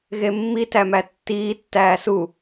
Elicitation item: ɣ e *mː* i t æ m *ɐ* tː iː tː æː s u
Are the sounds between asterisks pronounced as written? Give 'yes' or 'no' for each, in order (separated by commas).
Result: yes, no